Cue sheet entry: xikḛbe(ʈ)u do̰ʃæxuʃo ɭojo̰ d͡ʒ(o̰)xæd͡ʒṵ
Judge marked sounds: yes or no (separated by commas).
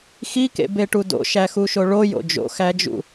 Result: yes, yes